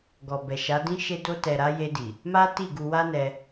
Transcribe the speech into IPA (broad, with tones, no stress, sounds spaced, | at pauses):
ɡ ɔ˨ b ɛ˨ ʃ a˨˦ d ĩ˦ ʃ e˧ d o˧ t ɛ˨ ɾ a˧ j e˧ d i˨ | m a˦ t i˦˨ ɡ u˧ w a˦ n ɛ˧